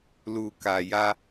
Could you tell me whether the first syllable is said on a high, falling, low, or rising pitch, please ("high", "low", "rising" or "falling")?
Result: low